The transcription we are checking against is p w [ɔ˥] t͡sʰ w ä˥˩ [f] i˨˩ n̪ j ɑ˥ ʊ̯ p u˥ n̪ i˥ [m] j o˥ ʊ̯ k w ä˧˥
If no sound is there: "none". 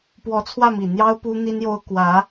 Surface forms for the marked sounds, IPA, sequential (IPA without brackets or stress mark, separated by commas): ɔ˧˥, m, n